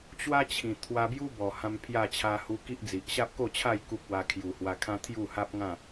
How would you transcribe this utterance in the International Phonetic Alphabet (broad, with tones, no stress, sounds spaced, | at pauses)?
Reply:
t͡ɕ w a˦ t͡ɕʰ ĩ˨˩ t̪ʰ w a˧ b j u˦ b ɔ˨˩ h ã˧ m pʰ j a˥˧ t͡ɕʰ a˧ h u˧ k i˦ ʔ d͡z i˨ ʔ ɕ a˦ p̚ k o˥˧ t͡ɕʰ a˥˧ j k u˦ k̚ w a˧ kʰ j u˨˩ h w a˧ kʰ ã˦ t̪ʰ j u˥˧ h a˦ p̚ ŋ ã˥˧